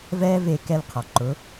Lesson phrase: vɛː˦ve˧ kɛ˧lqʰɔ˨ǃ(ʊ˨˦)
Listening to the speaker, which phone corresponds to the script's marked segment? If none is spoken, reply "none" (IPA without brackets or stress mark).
ʊ˨˦